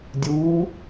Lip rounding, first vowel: rounded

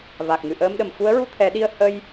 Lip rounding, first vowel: unrounded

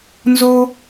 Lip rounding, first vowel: rounded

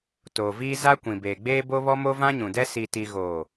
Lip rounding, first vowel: rounded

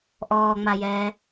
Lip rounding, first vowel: rounded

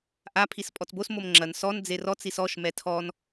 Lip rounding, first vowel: unrounded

